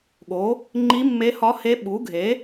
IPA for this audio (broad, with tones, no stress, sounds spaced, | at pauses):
ɠ o˩˥ | ŋ͡ǃ i˧˥ mː e˧˥ h ɒ˧˥ h e˧˥ ɓ u˩˥ ɡʱ e˩˥